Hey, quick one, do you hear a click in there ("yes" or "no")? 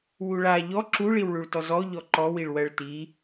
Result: yes